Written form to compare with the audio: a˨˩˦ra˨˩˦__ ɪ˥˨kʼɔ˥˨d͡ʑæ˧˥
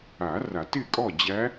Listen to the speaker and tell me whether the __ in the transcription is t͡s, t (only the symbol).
t